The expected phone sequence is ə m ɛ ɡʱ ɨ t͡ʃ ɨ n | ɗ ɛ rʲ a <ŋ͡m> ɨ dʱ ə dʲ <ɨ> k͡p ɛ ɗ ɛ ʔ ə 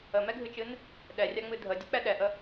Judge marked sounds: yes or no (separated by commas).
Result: yes, yes